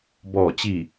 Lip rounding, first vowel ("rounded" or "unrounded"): rounded